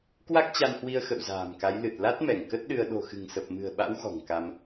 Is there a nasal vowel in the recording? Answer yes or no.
no